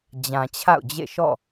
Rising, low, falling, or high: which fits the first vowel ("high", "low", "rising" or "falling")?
low